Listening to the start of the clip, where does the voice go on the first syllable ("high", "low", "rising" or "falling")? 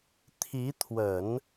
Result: rising